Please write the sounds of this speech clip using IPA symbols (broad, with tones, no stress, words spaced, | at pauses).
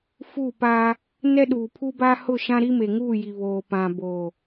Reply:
fu˦˨paː˦ | nɛ˦ɗuː˨ pʰu˦ba˦ hʊ˦˨ʃã˦ ɾi˦me˨ŋuː˦˨ji˨ βoː˨pã˨ boː˨